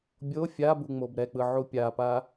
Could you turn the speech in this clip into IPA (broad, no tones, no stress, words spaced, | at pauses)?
bʲo fʲabu ŋ͡mobɾɛk͡pɯ ʕupʲapa